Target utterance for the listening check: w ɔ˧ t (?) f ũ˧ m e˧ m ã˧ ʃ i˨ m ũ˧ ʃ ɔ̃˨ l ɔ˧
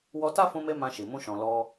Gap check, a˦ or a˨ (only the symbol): a˦